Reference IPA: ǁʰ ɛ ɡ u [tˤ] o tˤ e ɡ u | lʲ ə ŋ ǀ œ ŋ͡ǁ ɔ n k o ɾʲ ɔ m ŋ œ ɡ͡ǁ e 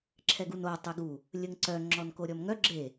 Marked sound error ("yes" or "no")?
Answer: yes